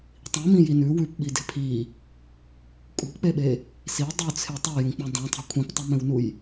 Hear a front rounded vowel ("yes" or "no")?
no